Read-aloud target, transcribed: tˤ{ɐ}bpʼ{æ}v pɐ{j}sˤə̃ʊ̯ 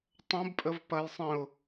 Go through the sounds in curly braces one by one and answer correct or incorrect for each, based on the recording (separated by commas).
incorrect, incorrect, correct